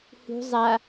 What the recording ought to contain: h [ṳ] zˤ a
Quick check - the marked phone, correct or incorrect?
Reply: correct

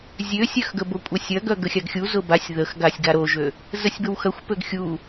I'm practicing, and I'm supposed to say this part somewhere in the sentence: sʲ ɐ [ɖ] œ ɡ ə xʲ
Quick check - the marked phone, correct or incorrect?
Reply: incorrect: ɡ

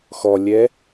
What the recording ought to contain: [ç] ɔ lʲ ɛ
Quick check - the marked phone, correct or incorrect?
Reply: incorrect: x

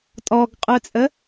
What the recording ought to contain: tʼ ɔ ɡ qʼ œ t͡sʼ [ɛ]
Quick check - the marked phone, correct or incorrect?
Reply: incorrect: ə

